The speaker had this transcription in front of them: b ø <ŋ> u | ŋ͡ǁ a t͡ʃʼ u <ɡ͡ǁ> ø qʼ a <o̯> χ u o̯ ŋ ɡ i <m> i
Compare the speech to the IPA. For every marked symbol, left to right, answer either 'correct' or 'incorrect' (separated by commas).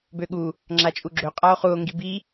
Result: incorrect, correct, correct, incorrect